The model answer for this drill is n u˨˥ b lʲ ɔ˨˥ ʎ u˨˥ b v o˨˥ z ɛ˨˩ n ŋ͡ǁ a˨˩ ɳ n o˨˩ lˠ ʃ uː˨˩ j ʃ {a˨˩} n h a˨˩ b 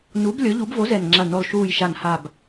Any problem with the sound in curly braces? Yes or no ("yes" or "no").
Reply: no